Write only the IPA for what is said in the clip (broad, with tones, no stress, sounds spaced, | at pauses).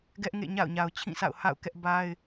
ɡ ɛ˦ ʔ ŋ ḛ˦˨ ɲ a̰˦˨ ʊ̯ ɲ a˨ ʊ̯ t͡ɕʰ ĩ˦˨ sʰ a̰˦˨ ʊ̯ h a̰˦˨ ʊ̯ k ɛ˦ ʔ b a˦ ɪ̯